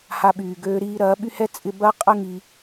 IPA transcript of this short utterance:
h a˧ ɓ yː˨ ɡ øː˧ ɾ iː˧ ɾ ɐː˨˦ ɓ y˦ h ɛ˦ t͡sʼ ɪ˦ b ɐː˦ qʼ ə˦ ŋ i˧

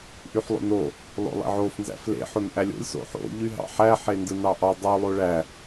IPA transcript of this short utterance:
ʔ y ħ lˠ o̰ n o | lˠ o̰ lˠ ḛ ʕ o f n z æ̰ f l ḛ ħ o n ʔ æ lʲ o̰ lʲ s o̰ ħ o̰ ʎ y ɦ ɑ̰ ħ æ ħ e n d ɯ n ɑ ʔ ɑ dˤ o lˠ o ɭ æ

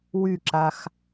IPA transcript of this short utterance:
w y ǁ a x

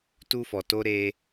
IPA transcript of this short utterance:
t u˧ f ɔ˨ t o˧ ɾ e˧

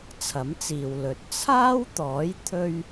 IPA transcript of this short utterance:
t͡sʰ ɐ˨˥ m t͡s iː˨ w l ɵ˨˥ t̚ t͡sʰ aː˥ w t̪ ɔː˨˥ j t̪ʰ ɵ˥ ɥ

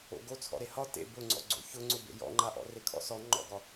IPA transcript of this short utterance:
o̰ ɡ o t͡sʰ ɔ̰ ɾ e h ɒ t ḛ b ʊ ŋ͡ǀ ɔ̰ ɡ͡ǀ o̰ ç ʊ ŋ͡ǀ ʊ b ḛ j ɔ̰ ŋ͡ǃ a ʔ ɔ̰ r e kʰ ɔ̰ s ɔ ŋ͡ǃ ɔ̰ ɡ ɒ

